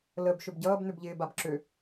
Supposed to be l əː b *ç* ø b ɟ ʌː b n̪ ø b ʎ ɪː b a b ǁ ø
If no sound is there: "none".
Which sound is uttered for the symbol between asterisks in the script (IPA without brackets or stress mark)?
ʃ